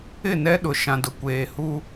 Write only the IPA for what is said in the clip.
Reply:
ɪ˦˨nɛ˦ ɗʊ˨ ʃã˨dʊ˨kʷeː˨ hu˦

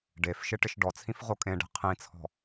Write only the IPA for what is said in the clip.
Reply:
ɖefʃɪ ʈɪʃɖɔt͡sʰĩf ʁokʼẽɖe̤ qʰĩt͡sʰɔ̤

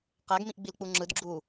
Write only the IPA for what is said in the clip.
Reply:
qæɡmĩʔɡ͡bilk͡pu ŋ͡ǁɯd ɡ͡ǁu

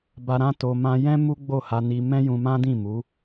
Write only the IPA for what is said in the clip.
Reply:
ba˧ɾã˦to˧ mã˧jɛ̃˦ mu˦ɡ͡bo˦˨ha˧ni˧ mɛ̃˦jũ˧mã˦dĩ˦˨ mu˨˦

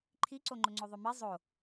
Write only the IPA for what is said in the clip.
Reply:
ǃʰiǀoŋ͡ǃʊŋ͡ǀo ðˤʊmi zˤo

